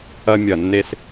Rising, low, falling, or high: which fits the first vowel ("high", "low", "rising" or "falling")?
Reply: high